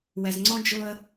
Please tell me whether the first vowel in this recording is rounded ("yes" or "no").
no